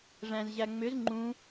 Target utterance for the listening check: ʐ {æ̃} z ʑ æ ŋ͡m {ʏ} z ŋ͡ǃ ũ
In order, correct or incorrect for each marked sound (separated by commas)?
correct, correct